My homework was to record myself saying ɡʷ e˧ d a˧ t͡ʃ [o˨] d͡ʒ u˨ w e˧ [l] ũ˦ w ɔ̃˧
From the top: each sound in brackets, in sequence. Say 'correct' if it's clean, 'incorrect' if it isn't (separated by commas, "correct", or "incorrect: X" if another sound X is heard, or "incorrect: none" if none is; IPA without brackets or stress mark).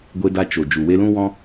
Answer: correct, correct